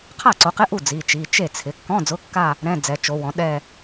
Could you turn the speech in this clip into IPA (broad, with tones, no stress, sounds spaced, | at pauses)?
qʰ a˥˩ ǀ o˨˦ q ɪ˧˥˧ ʔ u˥˩ d͡z i˩˧˩ t͡ʃ i˩˧˩ t͡ʃ e˥˩ t͡sʰ ɪ˩˧˩ kː ɔ̃˧˥˧ d͡z ʊ˧˥˧ kː a˥˧ | ɾ ɛ̃˧˥˧ d͡z ɛ˨˦ t͡ʃ o˨˦ w ɔ̃˨˦ ɗ ɛ˥˧